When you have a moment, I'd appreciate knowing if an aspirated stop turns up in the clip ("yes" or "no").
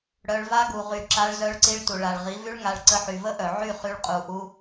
no